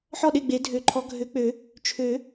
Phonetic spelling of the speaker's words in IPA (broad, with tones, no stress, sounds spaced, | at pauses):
ħ ɔ˥˨ ɗ e˥˨ ɡ͡b e˨˩˦ dʱ ø˨˩˦ ǃʰ ɔ˨˦ ɡʱ ø˨˦ k͡p ø˨˩˦ | t͡ʃʰ ø˨˩˦